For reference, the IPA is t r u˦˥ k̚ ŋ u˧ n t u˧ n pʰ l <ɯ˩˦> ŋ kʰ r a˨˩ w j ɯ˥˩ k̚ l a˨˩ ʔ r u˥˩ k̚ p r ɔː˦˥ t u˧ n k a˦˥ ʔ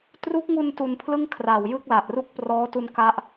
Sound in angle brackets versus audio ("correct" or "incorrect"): incorrect